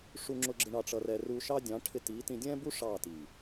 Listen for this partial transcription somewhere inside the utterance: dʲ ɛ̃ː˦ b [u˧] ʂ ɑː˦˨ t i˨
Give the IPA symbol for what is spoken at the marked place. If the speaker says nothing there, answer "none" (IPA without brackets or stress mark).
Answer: u˦